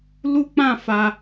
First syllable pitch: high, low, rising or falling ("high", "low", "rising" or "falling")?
high